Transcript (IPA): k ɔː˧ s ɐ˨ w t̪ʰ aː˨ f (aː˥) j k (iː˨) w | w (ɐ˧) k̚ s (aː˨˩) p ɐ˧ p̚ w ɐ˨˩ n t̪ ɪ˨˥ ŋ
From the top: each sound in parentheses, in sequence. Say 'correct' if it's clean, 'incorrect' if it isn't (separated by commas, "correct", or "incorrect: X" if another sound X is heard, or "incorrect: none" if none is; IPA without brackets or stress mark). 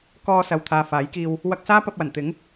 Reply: incorrect: aː˨˥, incorrect: iː˧, correct, incorrect: aː˥